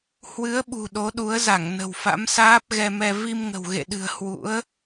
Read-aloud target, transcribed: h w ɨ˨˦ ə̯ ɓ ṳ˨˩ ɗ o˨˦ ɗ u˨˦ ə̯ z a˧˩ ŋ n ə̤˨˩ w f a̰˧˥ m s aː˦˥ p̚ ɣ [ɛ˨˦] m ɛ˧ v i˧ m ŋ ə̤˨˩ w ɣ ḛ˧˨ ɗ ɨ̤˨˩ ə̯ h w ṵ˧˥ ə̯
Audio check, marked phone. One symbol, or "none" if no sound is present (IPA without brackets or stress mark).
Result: ɛ˧